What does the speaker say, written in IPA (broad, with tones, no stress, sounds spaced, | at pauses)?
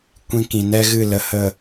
kʷ ĩ˧ k ĩ˨ n ɛ˦ ɣ ɨ˦˨ l ə˧ h ə˦˨